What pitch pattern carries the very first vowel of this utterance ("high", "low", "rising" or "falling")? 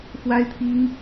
high